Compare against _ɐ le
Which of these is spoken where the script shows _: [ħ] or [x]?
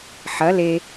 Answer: ħ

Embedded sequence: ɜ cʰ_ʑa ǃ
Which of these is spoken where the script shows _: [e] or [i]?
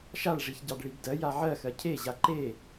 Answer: e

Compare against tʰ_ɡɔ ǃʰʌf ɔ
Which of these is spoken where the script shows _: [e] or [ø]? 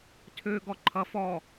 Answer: ø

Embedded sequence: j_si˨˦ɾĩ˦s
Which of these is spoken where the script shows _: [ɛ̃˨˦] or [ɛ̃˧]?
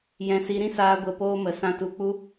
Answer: ɛ̃˨˦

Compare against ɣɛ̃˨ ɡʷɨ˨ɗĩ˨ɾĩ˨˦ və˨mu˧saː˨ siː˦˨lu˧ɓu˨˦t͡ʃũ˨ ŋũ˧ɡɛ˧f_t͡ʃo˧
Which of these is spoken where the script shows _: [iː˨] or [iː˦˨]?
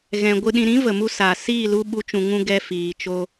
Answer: iː˨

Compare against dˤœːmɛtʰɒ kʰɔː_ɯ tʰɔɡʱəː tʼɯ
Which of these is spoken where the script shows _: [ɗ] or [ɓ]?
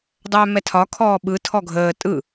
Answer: ɓ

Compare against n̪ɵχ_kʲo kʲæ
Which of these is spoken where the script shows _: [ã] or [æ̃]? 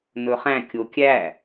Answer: æ̃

